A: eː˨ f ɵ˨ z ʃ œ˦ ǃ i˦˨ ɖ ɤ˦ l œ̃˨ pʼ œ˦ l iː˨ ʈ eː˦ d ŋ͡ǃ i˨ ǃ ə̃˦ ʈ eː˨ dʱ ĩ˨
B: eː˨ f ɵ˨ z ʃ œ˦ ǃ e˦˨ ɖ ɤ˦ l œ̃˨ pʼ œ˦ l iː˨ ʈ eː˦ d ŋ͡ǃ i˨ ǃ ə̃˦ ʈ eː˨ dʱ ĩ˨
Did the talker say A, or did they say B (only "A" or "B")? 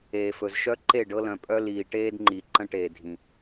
B